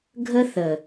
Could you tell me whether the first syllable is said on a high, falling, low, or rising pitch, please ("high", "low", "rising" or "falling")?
high